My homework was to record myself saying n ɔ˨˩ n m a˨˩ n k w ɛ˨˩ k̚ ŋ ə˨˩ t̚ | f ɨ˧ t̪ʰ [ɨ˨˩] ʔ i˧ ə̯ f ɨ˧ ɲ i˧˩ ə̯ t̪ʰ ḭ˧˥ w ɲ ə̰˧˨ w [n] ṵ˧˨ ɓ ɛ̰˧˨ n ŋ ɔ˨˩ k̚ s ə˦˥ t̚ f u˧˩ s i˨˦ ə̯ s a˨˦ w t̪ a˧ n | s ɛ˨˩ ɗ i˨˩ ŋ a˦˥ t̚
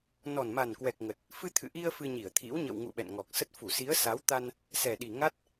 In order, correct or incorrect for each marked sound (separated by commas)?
incorrect, incorrect